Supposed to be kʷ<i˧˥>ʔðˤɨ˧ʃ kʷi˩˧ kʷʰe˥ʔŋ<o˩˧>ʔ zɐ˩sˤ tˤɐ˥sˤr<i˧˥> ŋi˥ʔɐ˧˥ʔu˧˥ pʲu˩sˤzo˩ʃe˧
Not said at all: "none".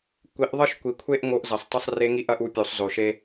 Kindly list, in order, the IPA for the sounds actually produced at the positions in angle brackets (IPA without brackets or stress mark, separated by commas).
i˩˧, o˧, e˧˥